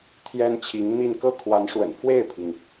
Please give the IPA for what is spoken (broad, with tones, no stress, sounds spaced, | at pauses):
t̪ʰ j ɛ˥ n t͡ɕʰ i˧˥ ŋ n̪ i˥˧ n k ɤ˥˩ kʰ w a˧˥ n ʂ w ə̰˨˩ n f w e˥˩ ɪ̯ pʰ i˩ ŋ